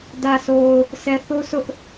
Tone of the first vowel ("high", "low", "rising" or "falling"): low